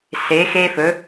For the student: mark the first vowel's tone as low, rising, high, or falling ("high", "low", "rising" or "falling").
rising